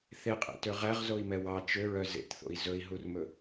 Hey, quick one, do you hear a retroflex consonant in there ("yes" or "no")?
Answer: no